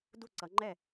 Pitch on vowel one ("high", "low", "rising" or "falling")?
falling